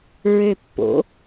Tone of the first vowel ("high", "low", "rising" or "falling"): low